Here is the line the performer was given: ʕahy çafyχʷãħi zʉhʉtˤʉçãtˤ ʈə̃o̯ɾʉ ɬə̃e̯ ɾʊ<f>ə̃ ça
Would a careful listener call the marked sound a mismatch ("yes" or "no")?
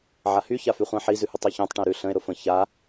no